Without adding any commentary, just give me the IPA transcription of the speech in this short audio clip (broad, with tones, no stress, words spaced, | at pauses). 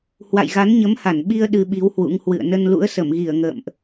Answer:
hwa̰˧˨jɣa˨˦nɲə˨˦mha˧˩n ɓi˧ə̯ ɗɨ˧ɓi˨˦whwṵ˧˥ŋhwɨ̰˧˨ə̯ nə˧nlṵ˧˥ə̯sə˧˩mɣi˧˩ə̯ ŋə̰ː˧˨mʔ